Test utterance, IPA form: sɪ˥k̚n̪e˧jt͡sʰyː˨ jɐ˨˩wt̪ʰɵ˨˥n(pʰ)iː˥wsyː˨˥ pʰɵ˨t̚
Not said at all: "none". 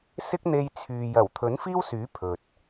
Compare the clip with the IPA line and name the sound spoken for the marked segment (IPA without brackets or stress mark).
f